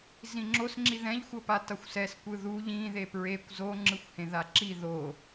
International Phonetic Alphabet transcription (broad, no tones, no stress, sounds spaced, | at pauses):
z ĩ ŋ͡ǁ o s ŋ͡ǁ i ð ɛ̃ ʎ xʷ ʌ p a t ʌ xʷ s ɛ s kʷ ɯ ð u ʎ ĩ ð e p ɹ e kʷ z o ŋ͡ǁ ɯ xʷ h ẽ ð a ǁ i ð o